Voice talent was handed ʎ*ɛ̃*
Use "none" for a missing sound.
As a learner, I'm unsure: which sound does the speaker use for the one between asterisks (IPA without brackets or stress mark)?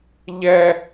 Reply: ɛ